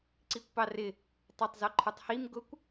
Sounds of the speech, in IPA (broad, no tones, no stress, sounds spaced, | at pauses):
ǀ i kʷ p ɑ r ɪ | tˤ ɛ tˤ z ɔ ǃʰ ə˞ tˤ h i m ɡ ʊ kʷ